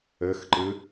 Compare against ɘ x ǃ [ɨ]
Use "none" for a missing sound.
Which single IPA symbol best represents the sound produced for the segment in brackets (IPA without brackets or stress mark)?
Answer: ɨ